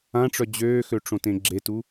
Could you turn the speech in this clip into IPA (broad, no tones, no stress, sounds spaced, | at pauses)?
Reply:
ã ʈ͡ʂ œ d͡ʑ øː x ø ʈ͡ʂ õ t ẽ ɡ͡ǁ e t u